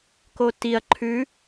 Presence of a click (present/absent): present